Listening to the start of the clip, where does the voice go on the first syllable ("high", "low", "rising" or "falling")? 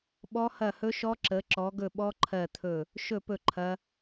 high